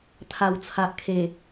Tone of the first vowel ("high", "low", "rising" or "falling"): low